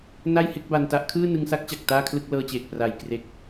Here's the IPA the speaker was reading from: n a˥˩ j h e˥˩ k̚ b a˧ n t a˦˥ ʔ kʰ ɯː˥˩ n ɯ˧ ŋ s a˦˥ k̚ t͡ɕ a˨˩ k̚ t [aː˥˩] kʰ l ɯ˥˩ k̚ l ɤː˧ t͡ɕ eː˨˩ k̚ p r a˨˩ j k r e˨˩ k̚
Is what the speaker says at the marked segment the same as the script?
yes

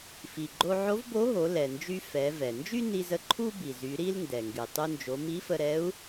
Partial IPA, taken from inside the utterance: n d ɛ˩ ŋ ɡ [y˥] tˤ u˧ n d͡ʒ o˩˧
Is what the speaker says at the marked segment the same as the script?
no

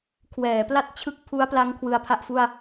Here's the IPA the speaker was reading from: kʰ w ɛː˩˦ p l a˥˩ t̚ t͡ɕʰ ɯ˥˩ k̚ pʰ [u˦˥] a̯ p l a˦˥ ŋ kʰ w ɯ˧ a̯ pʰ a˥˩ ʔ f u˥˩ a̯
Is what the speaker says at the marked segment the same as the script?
yes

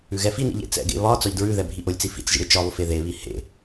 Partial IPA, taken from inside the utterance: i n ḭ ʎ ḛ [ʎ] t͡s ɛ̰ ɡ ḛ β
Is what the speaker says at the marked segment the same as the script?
no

